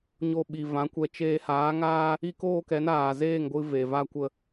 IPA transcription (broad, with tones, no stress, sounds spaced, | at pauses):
ɲ o˧ ɓ i˨ v ã˨˦ kʷ ɛ˧ t͡ʃ eː˧ h aː˨˦ ŋ aː˦ | i˦ k oː˦ k ɛ˨˦ n aː˨ z eː˦˨ ŋ ɡʷ ɨ˧ v e˨ v a˦ kʷ ə˦